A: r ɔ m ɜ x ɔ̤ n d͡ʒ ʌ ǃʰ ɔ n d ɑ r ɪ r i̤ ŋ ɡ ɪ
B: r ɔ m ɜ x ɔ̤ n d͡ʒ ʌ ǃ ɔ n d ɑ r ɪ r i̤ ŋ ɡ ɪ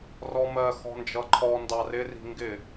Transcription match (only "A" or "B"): A